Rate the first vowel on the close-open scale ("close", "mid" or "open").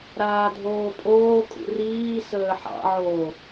open